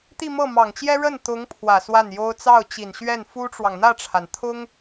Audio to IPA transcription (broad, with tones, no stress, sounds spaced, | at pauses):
t̪ i˥˧ m ɤ˥˩ m ɑ˨˩ ŋ t͡ɕ j ɛ˥ ɻ ə˥˩ n t̪ ʊ˧˥ ŋ pʰ w ä˨˩ s w a˥˩ n j o˥ ʊ̯ t͡s ɑ˥˩ ʊ̯ t͡ɕ i˨˩ n ɕ ɥ ɛ˥˩ n f u˥ ʈ͡ʂ w ɑ˨ ŋ n̪ ä˥˩ ʈ͡ʂʰ a˩ n t̪ʰ ʊ˥ ŋ